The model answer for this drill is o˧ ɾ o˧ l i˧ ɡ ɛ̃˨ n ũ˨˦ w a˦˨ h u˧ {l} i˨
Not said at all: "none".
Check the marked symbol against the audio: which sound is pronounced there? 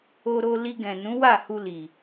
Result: l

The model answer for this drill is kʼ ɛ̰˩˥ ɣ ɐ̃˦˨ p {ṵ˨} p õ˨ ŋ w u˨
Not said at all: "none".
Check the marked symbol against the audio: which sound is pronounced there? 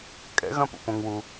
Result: ṵ˨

